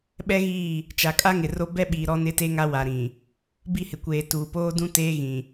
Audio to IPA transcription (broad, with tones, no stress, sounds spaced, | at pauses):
ɓ ɛ˦ ɣ iː˦˨ | t͡ʃ a˨ kʼ a˦ ŋ ɪ˨ r o˦ b ɛ˦ ɓ iː˨ ɾ ɔ˦ n ɪ˦ t e˦ ŋ a˦ w a˨ ɾ ĩ˨ | b i˦˨ h ɪ˨ kʷ eː˨ t uː˨ p oː˦ d ũ˦ t eː˦ ɣ ĩ˨